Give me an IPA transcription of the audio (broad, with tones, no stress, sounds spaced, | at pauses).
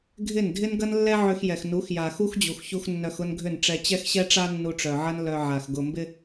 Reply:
ɡʱ ɪ˦˨ n dʱ ɪ˦ n ɡ ɐ˦ n lː ɛ˦ ʕ ʏ˧ x j ɛ˨ x n u˨˦ x j a˨ x u˦ x d͡ʑ u˨ x ç u˧ x nː œ˧ x ʊ˦ n ɡʱ ʏ˦˨ n ʈ͡ʂ ɛ˧ t͡ɕ ɛ˧ x ɕ ɛ˧ ʈ͡ʂ a˧ nː u˧ ʈ͡ʂ œ˨ ʕ ɐ˦ n l œ˨ ʕ a˨ x ɡ ʊ˧ m b ɪ˧